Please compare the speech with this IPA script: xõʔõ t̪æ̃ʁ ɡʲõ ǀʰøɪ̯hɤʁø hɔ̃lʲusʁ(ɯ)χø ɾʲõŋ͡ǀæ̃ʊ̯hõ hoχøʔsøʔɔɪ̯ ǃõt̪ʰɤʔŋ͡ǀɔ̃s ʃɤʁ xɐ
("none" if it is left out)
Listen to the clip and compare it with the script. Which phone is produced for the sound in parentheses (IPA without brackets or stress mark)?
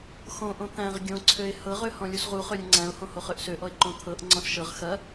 u